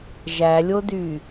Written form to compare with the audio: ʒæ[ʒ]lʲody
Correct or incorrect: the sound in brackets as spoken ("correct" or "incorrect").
incorrect